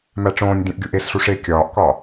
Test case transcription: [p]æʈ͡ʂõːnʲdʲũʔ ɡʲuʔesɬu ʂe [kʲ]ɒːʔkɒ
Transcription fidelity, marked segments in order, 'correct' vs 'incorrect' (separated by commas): incorrect, correct